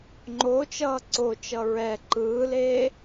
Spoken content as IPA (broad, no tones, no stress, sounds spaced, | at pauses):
ŋ͡ǃ o t͡ʃ ʌː ǀ o t͡ʃ ʌ ɹ ɛ ǃ ɯː l eː